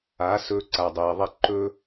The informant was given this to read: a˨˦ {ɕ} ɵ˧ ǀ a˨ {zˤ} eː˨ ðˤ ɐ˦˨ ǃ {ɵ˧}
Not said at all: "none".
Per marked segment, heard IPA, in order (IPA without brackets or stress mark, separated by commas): s, dˤ, ɵ˦